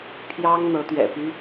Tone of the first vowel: high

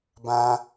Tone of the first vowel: high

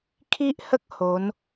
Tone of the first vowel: high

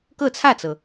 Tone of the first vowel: falling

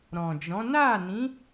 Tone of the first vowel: low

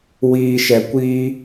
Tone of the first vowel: low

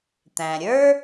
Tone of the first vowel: low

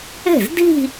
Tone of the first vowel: falling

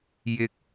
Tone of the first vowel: high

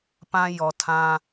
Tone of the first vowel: high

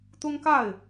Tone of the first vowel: high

